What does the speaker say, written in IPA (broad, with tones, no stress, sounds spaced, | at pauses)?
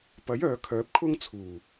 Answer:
p ɐ˨˥ j œː˨ kʰ œː˨˥ p̚ kʰ ʊ˥ ŋ t͡sʰ uː˨˩